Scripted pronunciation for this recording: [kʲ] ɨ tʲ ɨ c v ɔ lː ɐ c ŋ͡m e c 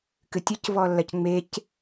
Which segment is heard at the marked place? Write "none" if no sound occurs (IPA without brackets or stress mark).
k